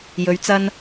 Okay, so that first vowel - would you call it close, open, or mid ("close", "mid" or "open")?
mid